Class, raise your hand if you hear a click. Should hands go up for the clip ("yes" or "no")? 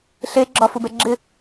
yes